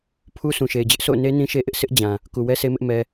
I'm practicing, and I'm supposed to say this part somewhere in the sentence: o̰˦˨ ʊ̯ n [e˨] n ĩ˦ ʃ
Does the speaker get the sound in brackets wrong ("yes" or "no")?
yes